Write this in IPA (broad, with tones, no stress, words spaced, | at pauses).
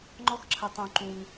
ŋ͡ǃɔ˧xǁʰə˩ tˤũ˩ ǃũ˩ŋ